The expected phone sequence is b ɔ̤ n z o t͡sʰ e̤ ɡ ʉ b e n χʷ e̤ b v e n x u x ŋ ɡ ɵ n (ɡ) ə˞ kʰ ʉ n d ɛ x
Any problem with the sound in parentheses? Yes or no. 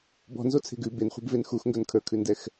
yes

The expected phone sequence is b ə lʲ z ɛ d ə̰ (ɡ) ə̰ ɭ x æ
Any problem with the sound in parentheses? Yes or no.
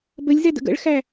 no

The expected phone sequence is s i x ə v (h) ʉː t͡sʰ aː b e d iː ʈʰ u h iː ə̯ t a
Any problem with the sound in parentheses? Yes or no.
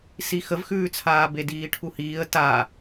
yes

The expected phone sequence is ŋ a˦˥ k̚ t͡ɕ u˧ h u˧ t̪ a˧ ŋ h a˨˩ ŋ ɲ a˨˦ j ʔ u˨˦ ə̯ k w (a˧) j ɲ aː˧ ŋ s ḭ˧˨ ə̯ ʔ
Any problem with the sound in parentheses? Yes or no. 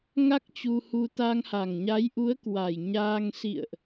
yes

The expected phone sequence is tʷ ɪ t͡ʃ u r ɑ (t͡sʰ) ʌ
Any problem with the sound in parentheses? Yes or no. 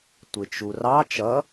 yes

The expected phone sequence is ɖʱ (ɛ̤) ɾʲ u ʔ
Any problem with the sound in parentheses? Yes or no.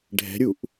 no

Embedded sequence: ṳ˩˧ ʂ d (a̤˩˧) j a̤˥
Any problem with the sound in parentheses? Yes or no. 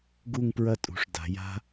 no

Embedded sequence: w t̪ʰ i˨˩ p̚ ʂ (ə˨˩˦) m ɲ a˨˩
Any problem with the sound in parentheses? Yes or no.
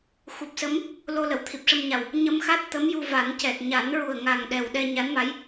yes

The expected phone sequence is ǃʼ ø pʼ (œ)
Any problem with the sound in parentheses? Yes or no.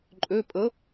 yes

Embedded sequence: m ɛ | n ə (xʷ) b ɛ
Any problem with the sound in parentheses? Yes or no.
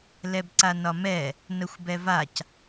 no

